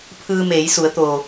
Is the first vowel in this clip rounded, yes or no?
no